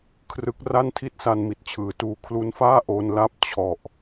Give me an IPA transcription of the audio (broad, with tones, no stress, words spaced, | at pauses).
kʰrɯ˦˥k̚ ra˥˩ntʰi˥˩t̚sa˧n mi˨˩t̚t͡ɕʰɯː˩˦tuː˧ kʰlu˦˥nfaː˥˩ ʔo˧nla˥˩p̚ t͡ɕʰɔ˨˩ʔ